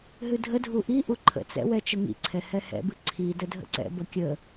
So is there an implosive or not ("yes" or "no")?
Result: no